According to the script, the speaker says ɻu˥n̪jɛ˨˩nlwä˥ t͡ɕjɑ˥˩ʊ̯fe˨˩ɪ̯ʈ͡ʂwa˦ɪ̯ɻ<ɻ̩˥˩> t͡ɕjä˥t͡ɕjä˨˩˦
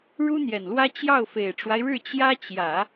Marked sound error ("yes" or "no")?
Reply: no